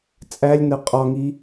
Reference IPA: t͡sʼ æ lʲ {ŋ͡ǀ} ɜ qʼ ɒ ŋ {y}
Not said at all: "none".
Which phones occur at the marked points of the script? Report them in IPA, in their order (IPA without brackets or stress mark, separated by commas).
n, i